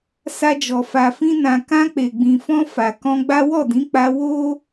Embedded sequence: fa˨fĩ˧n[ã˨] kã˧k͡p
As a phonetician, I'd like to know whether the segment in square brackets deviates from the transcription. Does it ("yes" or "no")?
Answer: no